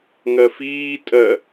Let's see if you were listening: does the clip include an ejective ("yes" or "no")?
yes